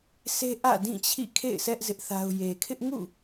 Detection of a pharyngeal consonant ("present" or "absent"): absent